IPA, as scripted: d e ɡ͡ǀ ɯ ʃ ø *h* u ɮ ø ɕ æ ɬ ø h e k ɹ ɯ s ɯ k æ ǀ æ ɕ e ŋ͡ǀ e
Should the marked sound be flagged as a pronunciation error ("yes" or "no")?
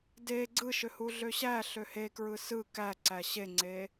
no